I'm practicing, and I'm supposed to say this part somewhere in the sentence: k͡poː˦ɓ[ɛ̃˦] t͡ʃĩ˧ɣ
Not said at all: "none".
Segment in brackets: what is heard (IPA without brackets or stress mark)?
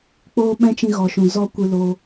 ɛ̃˦